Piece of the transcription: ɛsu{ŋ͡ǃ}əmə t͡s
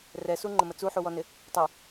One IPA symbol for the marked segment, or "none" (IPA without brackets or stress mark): ŋ͡ǃ